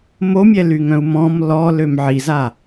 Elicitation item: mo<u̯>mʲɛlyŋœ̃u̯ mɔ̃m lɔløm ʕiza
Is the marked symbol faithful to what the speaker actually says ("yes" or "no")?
no